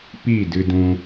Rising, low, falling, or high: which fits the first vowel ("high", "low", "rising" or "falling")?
falling